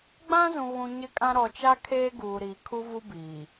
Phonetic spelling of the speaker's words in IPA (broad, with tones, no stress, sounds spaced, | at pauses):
ɡ͡b ã˦ z ũ˨ ɣ ũ˨ ɲ ɪ˦ kʼ ã˦ ɾ ɔ˨ t͡ʃ a˦ kʰ eː˦ ɡ uː˨ ɾ iː˨ kʰ u˦ v u˦ b iː˨